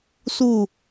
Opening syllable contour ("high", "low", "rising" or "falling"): falling